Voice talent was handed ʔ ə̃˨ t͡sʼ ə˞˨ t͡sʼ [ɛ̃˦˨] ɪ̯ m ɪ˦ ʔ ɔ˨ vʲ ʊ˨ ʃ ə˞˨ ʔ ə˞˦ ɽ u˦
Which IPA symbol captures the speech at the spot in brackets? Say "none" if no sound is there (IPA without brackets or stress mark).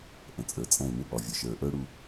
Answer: ɛ̃˦˨